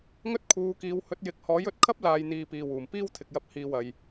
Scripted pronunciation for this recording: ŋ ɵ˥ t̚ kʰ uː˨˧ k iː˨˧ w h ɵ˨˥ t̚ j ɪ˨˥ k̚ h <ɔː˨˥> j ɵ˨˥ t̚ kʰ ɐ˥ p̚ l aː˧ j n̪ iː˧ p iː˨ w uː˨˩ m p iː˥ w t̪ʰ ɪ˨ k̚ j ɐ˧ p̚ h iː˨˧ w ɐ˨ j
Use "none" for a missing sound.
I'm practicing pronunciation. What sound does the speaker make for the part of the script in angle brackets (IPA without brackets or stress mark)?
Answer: ɔː˨˥